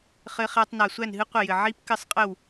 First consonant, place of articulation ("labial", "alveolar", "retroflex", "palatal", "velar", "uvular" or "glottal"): uvular